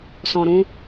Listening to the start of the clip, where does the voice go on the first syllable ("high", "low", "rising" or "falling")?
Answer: low